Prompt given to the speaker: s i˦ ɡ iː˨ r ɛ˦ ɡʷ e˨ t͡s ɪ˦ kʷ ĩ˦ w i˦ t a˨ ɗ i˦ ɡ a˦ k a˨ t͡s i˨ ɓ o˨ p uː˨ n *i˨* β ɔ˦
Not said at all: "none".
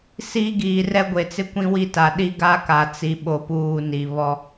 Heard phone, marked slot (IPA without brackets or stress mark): i˨